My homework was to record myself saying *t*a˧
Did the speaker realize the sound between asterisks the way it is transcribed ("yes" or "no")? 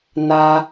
no